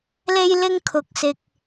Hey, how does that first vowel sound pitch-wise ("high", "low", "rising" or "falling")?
high